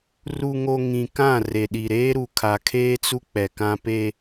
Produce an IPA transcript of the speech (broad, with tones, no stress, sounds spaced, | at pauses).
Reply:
r u˨ ŋ o˨ ŋ ĩ˨ k ã˦˨ r e˨ ɗ i˨ ɾ eː˦ ɾ u˨ kʰ a˨ kʰ eː˦ t͡s u˦ k͡p ɛ˨ k ã˦ p e˦